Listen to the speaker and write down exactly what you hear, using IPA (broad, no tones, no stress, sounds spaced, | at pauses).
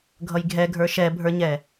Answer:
ɡʱ ʌ j ɡʱ ɛ ɡʱ ə˞ ʃ ɛ bʱ ə˞ ɲ ɛ